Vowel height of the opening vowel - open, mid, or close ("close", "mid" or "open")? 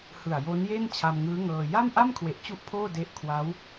close